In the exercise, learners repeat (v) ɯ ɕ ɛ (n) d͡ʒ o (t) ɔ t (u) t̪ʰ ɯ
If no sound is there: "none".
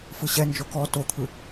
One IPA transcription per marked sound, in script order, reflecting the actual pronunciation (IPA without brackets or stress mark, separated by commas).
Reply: f, n, k, o